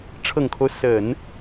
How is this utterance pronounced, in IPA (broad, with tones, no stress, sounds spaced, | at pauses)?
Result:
ʈ͡ʂʰ ɤ˨˩ ŋ kʰ o˦ ʊ̯ s ə˨˩˦ n